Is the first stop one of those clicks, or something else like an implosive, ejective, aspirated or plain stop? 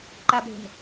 click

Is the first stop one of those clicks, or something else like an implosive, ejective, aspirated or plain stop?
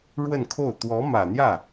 aspirated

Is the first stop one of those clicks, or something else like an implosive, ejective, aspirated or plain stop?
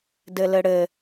plain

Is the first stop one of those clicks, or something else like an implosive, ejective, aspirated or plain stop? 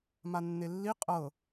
ejective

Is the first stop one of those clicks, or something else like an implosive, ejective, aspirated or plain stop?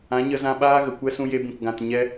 implosive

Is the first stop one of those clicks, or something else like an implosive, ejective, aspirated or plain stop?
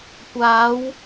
plain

